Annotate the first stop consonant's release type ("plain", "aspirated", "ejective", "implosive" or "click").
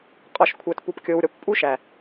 ejective